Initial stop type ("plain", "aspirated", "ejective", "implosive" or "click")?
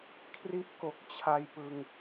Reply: aspirated